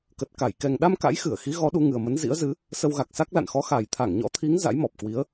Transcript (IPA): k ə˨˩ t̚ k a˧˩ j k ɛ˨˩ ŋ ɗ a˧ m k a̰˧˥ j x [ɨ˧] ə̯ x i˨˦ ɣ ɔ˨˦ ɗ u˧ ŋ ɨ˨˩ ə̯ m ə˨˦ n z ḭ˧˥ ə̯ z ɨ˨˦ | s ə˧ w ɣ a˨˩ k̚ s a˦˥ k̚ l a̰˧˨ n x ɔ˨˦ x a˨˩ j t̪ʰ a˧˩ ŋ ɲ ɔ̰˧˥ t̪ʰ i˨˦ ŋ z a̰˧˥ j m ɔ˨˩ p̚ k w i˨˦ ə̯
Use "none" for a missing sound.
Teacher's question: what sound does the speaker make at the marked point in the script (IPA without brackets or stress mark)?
ɨ˧˩